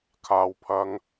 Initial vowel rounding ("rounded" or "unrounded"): unrounded